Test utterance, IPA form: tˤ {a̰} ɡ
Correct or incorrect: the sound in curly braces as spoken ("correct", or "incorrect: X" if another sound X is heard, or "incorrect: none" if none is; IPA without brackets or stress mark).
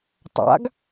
correct